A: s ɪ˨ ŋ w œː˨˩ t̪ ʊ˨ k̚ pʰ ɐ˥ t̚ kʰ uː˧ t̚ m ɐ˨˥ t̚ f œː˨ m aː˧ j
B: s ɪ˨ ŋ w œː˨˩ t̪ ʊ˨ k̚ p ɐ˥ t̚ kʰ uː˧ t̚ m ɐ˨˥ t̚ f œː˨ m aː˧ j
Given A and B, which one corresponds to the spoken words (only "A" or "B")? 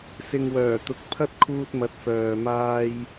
A